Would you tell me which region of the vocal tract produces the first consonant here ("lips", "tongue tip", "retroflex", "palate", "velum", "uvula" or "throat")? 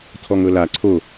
tongue tip